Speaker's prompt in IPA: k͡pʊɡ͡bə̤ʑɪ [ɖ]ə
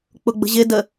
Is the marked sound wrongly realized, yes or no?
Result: yes